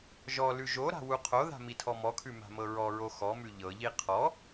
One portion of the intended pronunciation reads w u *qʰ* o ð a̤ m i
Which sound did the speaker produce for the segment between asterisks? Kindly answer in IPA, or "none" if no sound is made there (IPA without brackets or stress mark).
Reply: qʰ